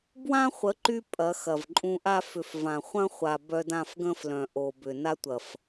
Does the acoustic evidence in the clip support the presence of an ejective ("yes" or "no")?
yes